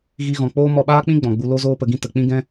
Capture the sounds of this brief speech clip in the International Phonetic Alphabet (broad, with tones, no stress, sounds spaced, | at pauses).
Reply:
ɣ i˧ ɣ ɔ̃˨ k͡p oː˦ m ɔ˧ ɓ aː˦ k͡p ĩ˦ ɡ͡b ɔ̃˨ ɡ͡b u˧ l o˦ z oː˦ p ə˧ ɡ ĩ˦ t ə˨ k͡p ĩ˦ ɡ ɛ̃˦